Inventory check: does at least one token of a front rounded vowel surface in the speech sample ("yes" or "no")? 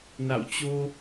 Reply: no